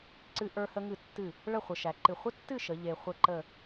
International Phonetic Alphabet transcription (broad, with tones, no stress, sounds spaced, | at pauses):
ǀ ɨ˧ ʔ ə˞˧ h ə˧ ŋ ɨ˧˩ tː ɨ˧˩ | ɭ ə˥˧ χʷ ə˩˧ ʃ æ˩˧ ǃ ɨ˧˩ χʷ ə˥ tː ɨ˥˧ ʃ ə˩˧ ʎ e˧ χʷ ə˥˧ ǃ ə˥˧